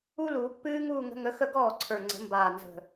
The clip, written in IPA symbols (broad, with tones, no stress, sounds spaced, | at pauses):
u˥ l uː˨˩˦ pː ɨː˥ ŋ uː˥˧ ŋ ə̤˨˥ ŋ ə˨˥ x ə˥˧ ɡ ɔː˥˩ ǀʰ ə˞˨˩ ŋ͡ǀ ə̤˨˩˦ m b aː˨˩ n z ə̤˨˩